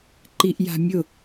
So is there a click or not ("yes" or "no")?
yes